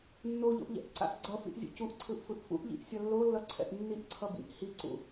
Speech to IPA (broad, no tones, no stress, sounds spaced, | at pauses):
nː o ʎ o̰ ʔ ʎ ɛ̰ ʔ ǀ a̰ ʔ ɡ͡ǀ ʌ f ḭ ʔ zʲ ṵ c u ʔ ǀʰ ɯ ʔ f ɯ ʔ f ṵ ʔ ʎ ḭ ʔ sʲ ʌ lː o lː ʌ ǀʰ ɛ̰ ʔ nː i ʔ ǀʰ ʌ b ḭ ʔ h i ǀ ṵ